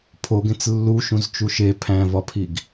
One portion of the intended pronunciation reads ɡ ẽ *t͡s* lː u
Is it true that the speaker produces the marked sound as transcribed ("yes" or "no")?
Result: yes